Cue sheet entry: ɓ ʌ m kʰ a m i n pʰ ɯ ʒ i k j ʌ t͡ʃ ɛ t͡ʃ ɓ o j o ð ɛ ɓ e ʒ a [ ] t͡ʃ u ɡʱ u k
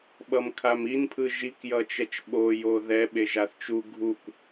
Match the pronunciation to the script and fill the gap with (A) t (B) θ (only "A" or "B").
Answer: B